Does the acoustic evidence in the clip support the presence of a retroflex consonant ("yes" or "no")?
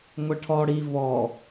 yes